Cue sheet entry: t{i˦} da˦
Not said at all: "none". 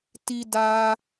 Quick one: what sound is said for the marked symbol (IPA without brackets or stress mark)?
i˦